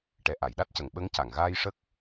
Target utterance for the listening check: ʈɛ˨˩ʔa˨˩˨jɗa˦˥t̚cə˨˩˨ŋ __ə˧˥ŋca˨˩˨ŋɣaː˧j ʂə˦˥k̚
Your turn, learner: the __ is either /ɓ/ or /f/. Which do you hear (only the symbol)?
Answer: ɓ